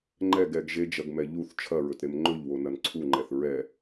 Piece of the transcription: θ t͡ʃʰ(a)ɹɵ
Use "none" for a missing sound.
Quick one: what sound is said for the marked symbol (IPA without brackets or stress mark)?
ɐ